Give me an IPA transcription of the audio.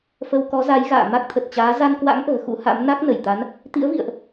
f ə˧ w k ɔ˨˦ z a˨˦ j ɣ a̰ː˧˨ m a˦˥ k̚ t̪ʰ ə˨˩ t̚ t͡ɕ aː˨˦ z a˧ n k w a̰˧˥ ŋ ʔ ə̤ː˨˩ x ṵ˧˥ h a̰˧˥ m n a˦˥ k̚ n ə˧˩ j t̪ a˨˦ n | t̪ ḭ˧˥ ə̯ v ḭ˧˨ ə̯ ʔ

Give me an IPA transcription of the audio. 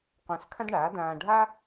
qʷ ã˧ s kʰ ã˥ d ɳ aː˩˥ d ãː˧ ɖʱ a˥

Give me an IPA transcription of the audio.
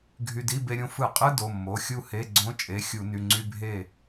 ɡʱ y˧ d i˧˥˧ b e˧ ɾʲ õ˧ f ɯ˧˩˧ qʼ ɯ˧˥˧ d o˩˧˩ mː o˩˧˩ xʲ u˥˩ h e˧˥˧ ɡ͡ǀ õ˧˥ t͡ʃʼ e˩˧˩ xʲ u˧˩˧ n y˩˧˩ ŋ͡ǀ y˧˥˧ bʱ e˥˩

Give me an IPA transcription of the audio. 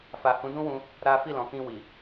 f a˨ h ũ˨˦ d ũ˦ w ũ˧ | ɾ a˦ f i˦˨ l ɔ̃˨ k ĩ˧ w i˨

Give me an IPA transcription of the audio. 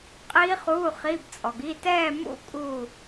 qʼ iː˦˥ χ uː˧˥˧ χ iː˧˥˧ b t͡sʼ ɔ˨ ɡ iː˧˥˧ t ɛː˥˧ m ṵ˥˧ kʼ u˥˧

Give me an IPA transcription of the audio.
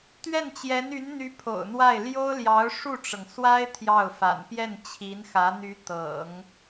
t̪ ɥ ɛ˥˩ n t͡ɕ j ɛ˧˥ n y˧˥ n n̪ y˧˥ pʰ o̰˨˩ ʊ̯ n̪ w a˥˩ ɪ̯ l j o˥ ʊ̯ l j ɑ˧˥ ʊ̯ ʂ u˥˩ ʈ͡ʂ ɤ˩ ŋ s w a˥ ɪ̯ t̪ʰ j ɑ˥˩ ʊ̯ f a̰˨˩ n p j ɛ˥˩ n t͡ɕʰ i˧˥ n x ä˧˥ n̪ y˧˥ t̪ ɤ̰˨˩˦ ŋ

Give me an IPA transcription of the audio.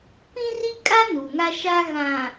p ĩ˦ r i˦ kʼ a˦ n u˨ ŋ a˦ ʃ a˦ ɣ ã˨

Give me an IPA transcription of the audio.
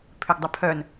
pʰ ʏ ɡ dˤ ʊ pʰ œ n

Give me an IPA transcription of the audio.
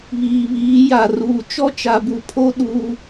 β iː˨ β iː˨˦ j a˨ r uː˨ t͡ʃ ɔ˦ t͡ʃ a˨ b u˨ pʰ o˦ ɗ u˦

